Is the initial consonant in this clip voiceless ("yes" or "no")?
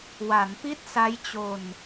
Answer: no